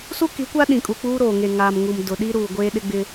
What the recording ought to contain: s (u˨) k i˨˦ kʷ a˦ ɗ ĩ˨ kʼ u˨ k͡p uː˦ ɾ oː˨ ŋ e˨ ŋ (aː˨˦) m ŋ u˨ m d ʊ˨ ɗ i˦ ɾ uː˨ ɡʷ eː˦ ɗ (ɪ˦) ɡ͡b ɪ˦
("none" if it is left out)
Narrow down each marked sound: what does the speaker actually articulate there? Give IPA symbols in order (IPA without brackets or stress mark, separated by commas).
u˦, aː˨, ɪ˦